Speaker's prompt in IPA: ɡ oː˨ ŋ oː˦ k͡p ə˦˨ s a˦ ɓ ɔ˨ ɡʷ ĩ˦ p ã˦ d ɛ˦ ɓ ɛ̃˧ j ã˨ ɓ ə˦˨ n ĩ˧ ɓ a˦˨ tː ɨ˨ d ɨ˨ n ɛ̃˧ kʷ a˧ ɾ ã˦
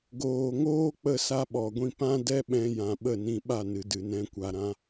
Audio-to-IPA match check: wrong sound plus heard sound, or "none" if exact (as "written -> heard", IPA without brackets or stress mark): tː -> n